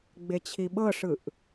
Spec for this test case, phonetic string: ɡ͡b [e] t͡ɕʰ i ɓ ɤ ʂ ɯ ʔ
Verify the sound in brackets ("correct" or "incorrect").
correct